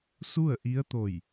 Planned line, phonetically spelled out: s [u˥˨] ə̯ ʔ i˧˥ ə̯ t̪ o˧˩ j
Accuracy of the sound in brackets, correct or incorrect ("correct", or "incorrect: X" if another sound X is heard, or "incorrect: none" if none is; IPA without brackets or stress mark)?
correct